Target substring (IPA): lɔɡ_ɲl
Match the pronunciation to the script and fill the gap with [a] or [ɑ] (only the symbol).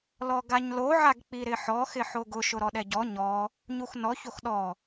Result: a